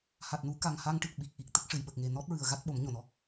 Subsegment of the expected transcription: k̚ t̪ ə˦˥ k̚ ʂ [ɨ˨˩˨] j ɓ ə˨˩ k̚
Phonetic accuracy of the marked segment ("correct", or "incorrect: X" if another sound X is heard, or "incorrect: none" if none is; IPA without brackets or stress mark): correct